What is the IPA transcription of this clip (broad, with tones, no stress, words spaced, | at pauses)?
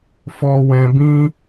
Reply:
fɔ˧ wɛ̃˧bĩ˦